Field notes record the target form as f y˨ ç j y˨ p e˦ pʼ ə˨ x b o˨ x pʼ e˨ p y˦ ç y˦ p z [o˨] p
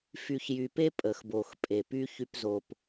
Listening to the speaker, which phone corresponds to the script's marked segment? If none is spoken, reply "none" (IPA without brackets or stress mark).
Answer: o˨